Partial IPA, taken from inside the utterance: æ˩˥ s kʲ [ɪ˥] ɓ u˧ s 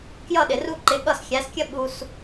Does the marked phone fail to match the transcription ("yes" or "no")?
yes